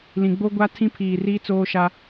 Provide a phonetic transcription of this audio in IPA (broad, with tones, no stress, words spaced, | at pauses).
lĩ˨ɡ͡bo˦ ɡʷa˦tʰĩ˦ pʰiː˨riː˦ t͡soː˦ʃa˦